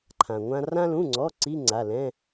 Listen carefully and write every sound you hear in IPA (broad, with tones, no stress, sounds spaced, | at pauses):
ǃʰ ã˩ ŋʷ ã˧ r ã˧ l ũ˩˧˩ ŋ͡ǀ ɔ˩˧˩ ǀ i˧˥˧ ŋ͡ǀ a˩˧˩ l ɛ̃˧˥˧